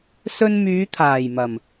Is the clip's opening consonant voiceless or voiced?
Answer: voiceless